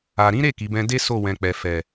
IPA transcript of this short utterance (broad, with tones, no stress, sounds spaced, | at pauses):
a˨ ɾ ĩ˨˦ ɾ e˦˨ k i˨˦ b ɛ̃˦ d e˦ s o˦˨ w ɛ̃˨ k͡p ɛ˨ f ɛ˨